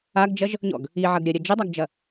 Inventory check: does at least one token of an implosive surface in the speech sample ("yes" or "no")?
no